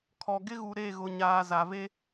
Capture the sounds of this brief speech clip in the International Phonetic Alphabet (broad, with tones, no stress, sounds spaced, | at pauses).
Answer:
kʰ ɔ˨ ɡ ɪ˦ ɣ u˨ ɾ e˦˨ ɣ ʊ˨ ɲ aː˨ z a˨ v e˦